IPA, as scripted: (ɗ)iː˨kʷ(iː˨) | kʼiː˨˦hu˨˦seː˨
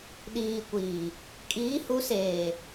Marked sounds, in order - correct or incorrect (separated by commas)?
correct, correct